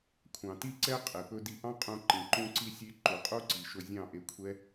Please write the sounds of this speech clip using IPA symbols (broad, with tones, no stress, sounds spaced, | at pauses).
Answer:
kʷʰ ɑ̃˨ t i˧ ǀ ɛ˧ qʼ e˨ p ɵ˧ d i˧ ʔ ɑ̃˦ qʼ ũ˧ ǃ ĩ˨ ǃ ũ˧ ǀ i˧ sʲ e˧ ǃ u˨ qʼ u˦ ǀ i˨ ʃ ɵ˧ zʲ ɑ̃˦˨ ʔ e˧ kʷʰ ɛ˦